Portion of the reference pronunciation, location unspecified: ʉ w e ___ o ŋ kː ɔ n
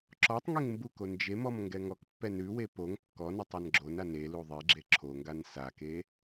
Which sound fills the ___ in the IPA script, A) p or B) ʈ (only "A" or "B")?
A